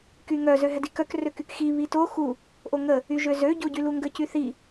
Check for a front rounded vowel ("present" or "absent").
present